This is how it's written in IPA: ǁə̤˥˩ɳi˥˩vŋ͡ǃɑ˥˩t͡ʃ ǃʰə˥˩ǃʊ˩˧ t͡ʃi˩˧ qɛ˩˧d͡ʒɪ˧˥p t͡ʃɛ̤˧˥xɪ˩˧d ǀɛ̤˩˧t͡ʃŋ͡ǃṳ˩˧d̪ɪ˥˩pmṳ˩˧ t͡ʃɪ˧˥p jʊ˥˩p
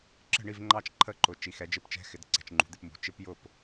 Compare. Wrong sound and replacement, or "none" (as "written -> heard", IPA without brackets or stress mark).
q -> x